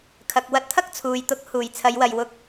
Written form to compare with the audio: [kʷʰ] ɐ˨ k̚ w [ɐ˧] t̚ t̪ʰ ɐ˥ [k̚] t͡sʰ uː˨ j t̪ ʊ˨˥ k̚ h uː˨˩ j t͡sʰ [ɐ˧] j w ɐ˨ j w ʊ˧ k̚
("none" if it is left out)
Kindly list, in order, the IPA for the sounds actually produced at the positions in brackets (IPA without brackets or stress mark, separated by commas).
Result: kʰ, ɐ˧, k̚, ɐ˨˧